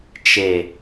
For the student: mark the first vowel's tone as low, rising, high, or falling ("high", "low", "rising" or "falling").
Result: low